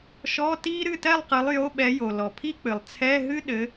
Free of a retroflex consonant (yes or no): yes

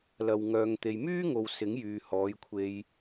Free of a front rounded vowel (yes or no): no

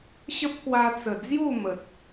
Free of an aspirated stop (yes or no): yes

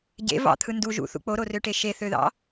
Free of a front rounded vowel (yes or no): no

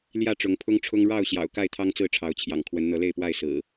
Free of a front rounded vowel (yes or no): yes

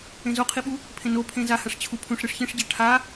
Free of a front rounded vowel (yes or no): yes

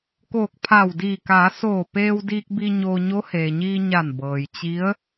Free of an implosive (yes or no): yes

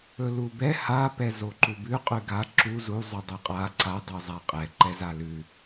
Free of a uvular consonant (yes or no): no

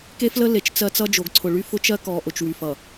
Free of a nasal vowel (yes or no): yes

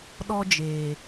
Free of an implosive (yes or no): no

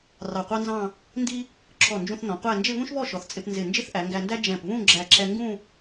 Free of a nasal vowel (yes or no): no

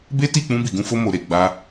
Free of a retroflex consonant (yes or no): yes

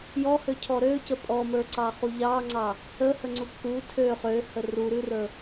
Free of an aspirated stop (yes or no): no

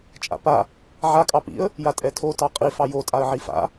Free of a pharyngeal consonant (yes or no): no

